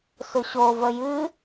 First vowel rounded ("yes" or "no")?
yes